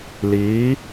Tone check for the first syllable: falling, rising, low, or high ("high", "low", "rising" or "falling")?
rising